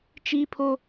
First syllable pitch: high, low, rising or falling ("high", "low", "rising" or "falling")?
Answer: high